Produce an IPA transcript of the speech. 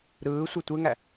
ɾ ɯː sʷ e tʷ e ŋ æ

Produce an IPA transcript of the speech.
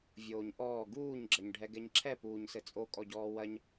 vʲ oː ɲ ʔ ɔː ɡ uː ɲ ɡ͡ǁ ɐ ɲ ɖʱ ɛ ɡ ɛ ɲ ǁʰ ɛ p uː ɲ s ɘ t͡sʼ o kʼ ɔ ɟ ɔː w ɐ ɲ

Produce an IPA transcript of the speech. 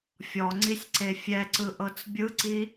fʲ ɔ ŋ͡ǀ i sʲ ǀ e fʲ ɛ ǀ ɯ ʔ ɤ t͡s bʲ ɯ ǀ i

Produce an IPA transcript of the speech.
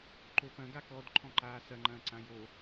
ǃ o p ɐ̃ ɡ a k ɔ d ǃʰ ɔ̃ ǃ aː s ɐ ŋ͡ǃ ɐ̃ː ǀ ã j o

